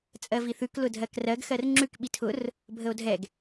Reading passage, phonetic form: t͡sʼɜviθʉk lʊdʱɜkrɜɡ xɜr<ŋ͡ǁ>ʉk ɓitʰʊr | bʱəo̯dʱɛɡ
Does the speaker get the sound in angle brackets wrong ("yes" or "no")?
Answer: no